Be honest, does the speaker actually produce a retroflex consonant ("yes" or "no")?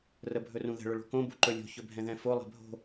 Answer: yes